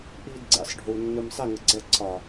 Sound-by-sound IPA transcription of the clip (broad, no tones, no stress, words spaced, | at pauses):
ʔiːdɡ͡ǀḭsˤ ɖʱuːnːɯmsˤi ŋəɡ͡ǀɛ ǀʰɒ